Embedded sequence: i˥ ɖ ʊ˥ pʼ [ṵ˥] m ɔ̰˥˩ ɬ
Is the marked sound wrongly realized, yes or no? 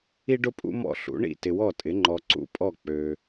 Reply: no